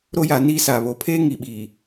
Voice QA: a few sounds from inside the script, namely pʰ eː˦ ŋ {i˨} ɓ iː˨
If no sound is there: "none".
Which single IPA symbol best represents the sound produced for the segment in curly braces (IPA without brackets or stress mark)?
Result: i˨